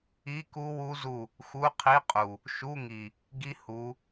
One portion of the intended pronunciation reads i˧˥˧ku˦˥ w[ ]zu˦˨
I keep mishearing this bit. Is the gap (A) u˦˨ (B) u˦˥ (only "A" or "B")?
B